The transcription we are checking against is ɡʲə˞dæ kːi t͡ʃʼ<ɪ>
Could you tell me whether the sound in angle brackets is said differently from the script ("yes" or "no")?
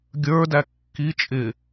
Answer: no